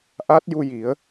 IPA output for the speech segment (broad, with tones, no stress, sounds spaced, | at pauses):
ʔ a˦˥ t̚ j u˧ j i˨˩˦ ə̯